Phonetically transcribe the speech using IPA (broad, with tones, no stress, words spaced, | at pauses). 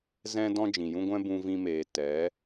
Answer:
zɛ̃˧dɔ̃˧ d͡ʒĩ˨jũ˦ɡʷɛ̃˦ bũ˧vĩ˧meː˨ tɛ˨˦